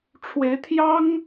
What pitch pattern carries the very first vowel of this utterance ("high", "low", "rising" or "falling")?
rising